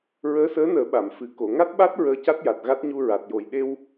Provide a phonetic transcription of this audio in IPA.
ɹəː˧˥səː˧˥nəː˨˩˦ ɓa˨˩˨m fɨ˨˩ ko˨˩˨ŋa˦˥t̚ɓa˦˥t̚ ɹəː˧ca˦˥t̚ja˨˩t̚ ɣa˦˥t̚ɲu˧ɹa˨˩t̚jo˨˩j ɗe˧w

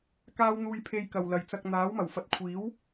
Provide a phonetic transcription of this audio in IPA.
kaː˥wn̪uː˧jpʰe˧j kɐ˨wlɐ˨jt͡sɐ˧k̚ n̪aː˨˥wmɐ˨˩wfɐ˨˥t̚ kʷʰiː˨˥w

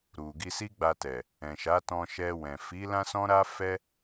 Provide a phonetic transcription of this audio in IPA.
ɾu˨ ɡi˧si˦ɡ͡ba˧tɛ˨ | ɛ̃˨ʃa˨˦tɔ̃˧ ʃɛ˧wɛ̃˨ fi˨˦ lã˦sɔ̃˦ɾa˦ fɛ˦

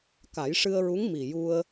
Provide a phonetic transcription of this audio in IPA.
ka˨˩˦jʂɨ˧ə̯ɹu˧˥ŋ mi˨˩ju˧ə̯

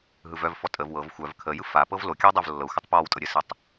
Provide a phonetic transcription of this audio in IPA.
ɦɯvœvfɔ tʼəv wɤv xʷœv kʰəjɯf a pɤvlokʲɯw dˤovlːɤxʷɘtˤ pɔwtʼɤ ɾʲɘsɯtˤ

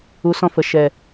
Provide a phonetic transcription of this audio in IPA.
u˨˦sɔ̃˧fə˨ ʃɛ˨

